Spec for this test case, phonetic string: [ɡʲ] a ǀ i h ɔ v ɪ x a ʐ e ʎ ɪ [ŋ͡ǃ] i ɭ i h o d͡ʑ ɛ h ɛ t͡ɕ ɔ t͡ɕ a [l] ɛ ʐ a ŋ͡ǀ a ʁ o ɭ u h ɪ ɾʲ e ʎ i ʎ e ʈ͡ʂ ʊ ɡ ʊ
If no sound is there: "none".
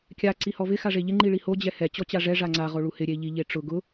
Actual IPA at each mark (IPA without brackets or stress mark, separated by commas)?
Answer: kʲ, ŋ͡ǃ, ʐ